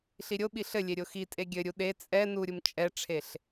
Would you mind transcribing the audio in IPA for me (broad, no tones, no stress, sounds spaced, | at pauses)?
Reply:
ɬ i ɾʲ o ɓ i ɬ ɘ lʲ e ɾʲ o x i tʼ e ɡʲ ɘ ɾʲ u ɗ e t͡sʼ ɛ n u ɾʲ u m t͡ʃʼ ɛ ʈ͡ʂʰ e ɬ